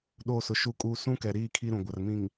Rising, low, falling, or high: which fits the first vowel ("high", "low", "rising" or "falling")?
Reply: falling